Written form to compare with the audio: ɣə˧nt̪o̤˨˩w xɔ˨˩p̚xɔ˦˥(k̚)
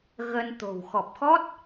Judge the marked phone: incorrect: t̚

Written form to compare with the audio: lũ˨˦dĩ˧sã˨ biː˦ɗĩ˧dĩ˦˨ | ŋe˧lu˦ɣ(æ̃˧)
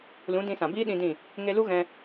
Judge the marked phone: incorrect: ɛ̃˧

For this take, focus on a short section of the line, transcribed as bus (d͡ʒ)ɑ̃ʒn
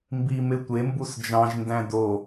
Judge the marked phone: correct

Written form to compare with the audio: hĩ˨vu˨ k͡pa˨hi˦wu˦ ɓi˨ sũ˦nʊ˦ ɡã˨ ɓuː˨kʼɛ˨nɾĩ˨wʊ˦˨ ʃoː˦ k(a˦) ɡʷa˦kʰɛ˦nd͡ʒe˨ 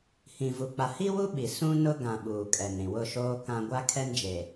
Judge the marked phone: incorrect: ã˦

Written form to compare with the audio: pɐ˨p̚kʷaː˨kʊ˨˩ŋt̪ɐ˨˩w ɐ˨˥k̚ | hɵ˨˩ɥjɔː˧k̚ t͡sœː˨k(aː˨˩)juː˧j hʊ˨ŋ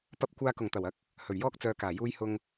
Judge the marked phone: correct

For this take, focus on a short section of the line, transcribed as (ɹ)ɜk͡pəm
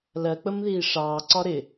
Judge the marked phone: incorrect: l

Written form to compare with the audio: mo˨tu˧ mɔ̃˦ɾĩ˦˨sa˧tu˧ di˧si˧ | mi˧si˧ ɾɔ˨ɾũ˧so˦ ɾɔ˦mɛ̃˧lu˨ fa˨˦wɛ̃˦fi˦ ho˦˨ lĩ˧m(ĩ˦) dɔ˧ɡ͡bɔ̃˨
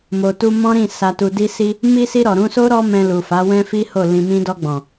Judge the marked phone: correct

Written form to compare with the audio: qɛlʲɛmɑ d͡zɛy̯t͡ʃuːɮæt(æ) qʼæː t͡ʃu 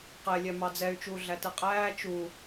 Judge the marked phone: incorrect: ɛ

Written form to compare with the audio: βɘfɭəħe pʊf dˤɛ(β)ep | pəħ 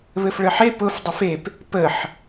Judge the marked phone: incorrect: f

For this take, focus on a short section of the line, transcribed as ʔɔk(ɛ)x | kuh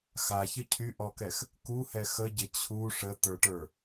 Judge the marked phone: correct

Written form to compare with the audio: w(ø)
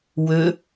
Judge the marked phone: correct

